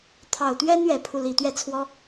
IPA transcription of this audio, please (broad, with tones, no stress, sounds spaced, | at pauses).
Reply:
t̪ʰ ɑ˨˩ ʊ̯ t̪ ɥ ɛ˥ n ɥ ɛ˨˩ pʰ u˥˩ l i˨˩ t̪ ɥ ɛ˥˩ t͡sʰ w ɔ˥